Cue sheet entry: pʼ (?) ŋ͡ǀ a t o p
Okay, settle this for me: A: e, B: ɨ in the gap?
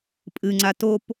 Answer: B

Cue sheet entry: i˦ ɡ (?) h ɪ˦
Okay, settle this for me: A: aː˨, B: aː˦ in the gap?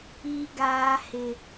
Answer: B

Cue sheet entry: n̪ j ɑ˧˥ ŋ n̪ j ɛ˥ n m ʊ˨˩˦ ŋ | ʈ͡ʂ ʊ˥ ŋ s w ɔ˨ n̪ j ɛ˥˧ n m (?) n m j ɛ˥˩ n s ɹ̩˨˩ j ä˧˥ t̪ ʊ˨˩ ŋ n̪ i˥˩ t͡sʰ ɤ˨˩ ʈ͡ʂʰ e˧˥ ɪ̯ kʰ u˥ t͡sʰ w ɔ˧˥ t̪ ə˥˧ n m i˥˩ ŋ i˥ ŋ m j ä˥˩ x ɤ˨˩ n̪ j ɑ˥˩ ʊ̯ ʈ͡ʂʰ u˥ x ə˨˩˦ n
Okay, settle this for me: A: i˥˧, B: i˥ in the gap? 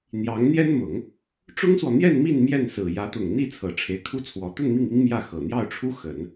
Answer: A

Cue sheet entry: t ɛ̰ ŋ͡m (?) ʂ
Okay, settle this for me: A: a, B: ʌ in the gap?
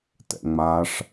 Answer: A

